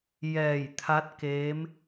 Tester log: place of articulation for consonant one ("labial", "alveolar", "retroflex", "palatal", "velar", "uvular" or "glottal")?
palatal